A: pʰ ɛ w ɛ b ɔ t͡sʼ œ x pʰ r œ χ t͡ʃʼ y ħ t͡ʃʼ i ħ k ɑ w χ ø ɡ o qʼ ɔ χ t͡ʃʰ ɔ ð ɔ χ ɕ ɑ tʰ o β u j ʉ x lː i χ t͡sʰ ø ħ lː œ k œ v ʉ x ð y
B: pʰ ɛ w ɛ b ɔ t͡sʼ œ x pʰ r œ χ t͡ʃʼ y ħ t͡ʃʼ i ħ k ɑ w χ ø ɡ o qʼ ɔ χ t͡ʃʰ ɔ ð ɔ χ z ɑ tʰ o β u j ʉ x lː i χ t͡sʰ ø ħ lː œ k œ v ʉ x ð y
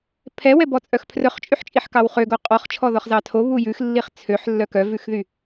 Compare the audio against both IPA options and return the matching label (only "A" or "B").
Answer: B